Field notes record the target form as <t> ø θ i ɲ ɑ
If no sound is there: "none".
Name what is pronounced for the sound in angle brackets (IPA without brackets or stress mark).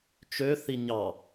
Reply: t͡ʃ